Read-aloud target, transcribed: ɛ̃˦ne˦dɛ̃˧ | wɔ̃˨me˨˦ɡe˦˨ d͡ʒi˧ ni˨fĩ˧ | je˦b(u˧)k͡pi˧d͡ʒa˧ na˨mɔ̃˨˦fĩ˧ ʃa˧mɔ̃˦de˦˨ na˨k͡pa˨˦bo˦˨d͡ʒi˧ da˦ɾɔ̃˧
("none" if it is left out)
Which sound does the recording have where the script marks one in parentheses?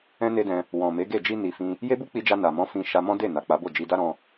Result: u˦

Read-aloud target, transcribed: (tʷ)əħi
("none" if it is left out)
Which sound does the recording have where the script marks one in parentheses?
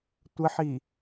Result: tʷ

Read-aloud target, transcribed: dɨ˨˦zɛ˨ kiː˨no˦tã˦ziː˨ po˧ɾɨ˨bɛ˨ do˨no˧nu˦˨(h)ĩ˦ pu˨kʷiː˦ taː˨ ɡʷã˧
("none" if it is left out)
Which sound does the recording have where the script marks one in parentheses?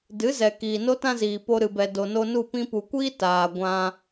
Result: p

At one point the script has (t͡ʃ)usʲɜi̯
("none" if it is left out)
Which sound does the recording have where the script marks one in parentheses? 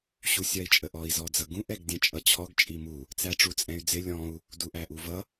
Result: ɕ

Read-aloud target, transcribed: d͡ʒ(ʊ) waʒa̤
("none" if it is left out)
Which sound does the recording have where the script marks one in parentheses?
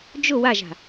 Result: ʊ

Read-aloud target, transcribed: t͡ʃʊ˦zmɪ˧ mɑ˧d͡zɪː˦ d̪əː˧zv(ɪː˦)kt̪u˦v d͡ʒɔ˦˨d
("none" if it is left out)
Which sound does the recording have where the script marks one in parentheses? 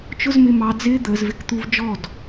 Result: ɪ˦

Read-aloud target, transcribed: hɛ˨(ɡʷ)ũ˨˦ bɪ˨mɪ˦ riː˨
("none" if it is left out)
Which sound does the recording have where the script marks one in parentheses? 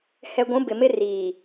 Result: ɡʷ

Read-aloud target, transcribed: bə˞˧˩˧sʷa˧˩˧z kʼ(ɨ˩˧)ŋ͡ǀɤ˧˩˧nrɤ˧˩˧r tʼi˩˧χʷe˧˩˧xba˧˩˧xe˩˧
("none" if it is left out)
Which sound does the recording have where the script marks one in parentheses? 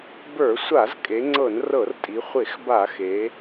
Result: e˩˧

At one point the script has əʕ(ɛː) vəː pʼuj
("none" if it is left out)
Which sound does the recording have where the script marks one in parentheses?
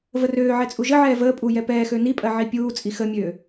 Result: ɛː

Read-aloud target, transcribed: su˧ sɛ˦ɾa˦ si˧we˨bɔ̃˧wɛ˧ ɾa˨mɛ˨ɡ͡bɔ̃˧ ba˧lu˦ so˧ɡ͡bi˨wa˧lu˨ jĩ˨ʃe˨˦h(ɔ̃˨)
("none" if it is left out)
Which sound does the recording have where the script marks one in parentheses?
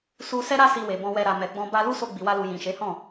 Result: ɔ̃˦˨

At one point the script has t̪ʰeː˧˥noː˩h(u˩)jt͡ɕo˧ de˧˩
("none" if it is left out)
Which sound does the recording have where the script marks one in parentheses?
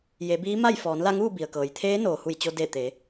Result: u˧˩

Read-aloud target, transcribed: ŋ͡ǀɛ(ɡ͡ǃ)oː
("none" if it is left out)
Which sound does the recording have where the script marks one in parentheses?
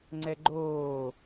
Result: ɡ͡ǃ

